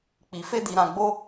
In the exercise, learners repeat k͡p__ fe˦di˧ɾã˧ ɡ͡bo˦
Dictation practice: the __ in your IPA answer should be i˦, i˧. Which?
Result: i˧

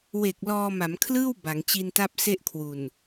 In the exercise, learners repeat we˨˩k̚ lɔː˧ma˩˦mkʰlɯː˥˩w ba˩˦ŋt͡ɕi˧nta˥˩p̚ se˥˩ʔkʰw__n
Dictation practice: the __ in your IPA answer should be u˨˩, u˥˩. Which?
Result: u˨˩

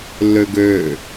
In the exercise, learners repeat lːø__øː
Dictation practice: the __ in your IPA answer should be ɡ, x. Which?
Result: ɡ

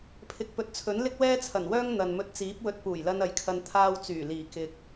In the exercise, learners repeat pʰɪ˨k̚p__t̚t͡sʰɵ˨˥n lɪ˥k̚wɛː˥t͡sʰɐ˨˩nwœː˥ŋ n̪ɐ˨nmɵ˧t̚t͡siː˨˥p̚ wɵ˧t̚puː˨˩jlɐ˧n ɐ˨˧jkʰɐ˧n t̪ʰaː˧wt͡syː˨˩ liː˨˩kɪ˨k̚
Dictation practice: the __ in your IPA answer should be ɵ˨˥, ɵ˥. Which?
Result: ɵ˨˥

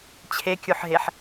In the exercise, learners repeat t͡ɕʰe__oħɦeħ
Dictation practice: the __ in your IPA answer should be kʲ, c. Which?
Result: kʲ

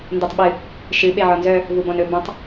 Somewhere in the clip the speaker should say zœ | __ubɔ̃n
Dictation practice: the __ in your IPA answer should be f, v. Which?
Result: v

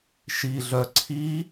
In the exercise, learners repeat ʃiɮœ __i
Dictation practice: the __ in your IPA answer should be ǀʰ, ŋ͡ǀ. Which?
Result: ǀʰ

